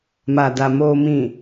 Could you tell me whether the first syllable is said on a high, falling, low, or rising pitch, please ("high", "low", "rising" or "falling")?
low